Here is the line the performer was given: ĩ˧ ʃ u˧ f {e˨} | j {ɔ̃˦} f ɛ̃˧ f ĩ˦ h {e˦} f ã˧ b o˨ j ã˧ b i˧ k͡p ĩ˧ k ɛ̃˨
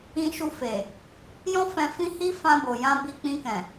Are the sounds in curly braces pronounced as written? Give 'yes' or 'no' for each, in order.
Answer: yes, yes, no

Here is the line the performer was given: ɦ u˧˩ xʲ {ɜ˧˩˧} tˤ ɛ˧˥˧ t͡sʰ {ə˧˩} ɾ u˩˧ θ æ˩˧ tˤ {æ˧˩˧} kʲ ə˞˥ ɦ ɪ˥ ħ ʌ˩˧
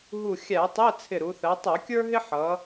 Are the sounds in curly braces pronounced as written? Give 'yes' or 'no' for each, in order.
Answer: no, no, yes

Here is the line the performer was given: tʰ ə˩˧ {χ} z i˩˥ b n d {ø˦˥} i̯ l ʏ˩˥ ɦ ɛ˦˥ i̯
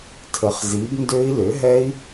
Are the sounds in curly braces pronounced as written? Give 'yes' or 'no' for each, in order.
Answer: yes, yes

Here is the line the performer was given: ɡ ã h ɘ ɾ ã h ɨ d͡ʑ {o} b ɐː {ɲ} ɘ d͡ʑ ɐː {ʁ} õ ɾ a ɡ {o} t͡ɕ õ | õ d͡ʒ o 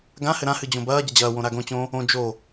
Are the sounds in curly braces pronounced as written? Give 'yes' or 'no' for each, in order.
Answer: no, no, no, no

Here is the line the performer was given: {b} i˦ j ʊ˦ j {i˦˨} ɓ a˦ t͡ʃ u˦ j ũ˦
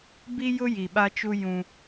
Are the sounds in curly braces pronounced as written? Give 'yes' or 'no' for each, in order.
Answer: yes, no

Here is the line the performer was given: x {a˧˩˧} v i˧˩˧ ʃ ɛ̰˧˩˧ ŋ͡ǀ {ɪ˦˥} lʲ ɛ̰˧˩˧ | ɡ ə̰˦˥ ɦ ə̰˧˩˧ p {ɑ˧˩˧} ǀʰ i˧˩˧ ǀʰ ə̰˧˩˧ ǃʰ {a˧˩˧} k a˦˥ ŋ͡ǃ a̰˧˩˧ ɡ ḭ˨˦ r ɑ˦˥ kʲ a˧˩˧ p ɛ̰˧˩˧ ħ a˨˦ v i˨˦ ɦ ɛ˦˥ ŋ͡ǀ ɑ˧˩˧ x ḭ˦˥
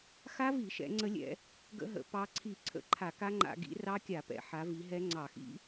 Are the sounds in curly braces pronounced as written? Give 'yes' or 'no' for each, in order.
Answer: no, no, no, yes

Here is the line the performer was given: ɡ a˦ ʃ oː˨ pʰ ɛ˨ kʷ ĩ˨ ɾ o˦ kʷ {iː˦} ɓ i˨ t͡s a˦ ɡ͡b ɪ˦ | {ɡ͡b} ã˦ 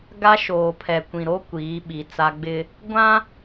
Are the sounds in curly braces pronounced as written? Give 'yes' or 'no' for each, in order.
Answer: no, no

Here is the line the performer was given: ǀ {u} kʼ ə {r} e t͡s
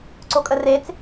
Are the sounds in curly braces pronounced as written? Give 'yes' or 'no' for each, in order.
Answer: no, yes

